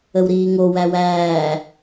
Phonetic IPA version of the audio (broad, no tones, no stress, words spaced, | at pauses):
əwɾiːŋo wæwæː